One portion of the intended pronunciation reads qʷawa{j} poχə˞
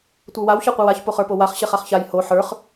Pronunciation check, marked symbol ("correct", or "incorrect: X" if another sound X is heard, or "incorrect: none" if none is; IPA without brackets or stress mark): incorrect: ç